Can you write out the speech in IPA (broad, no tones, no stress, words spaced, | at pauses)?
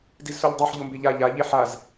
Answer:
dizsoʎdˤeħ ʎombeʎa ʎa ʎeħaz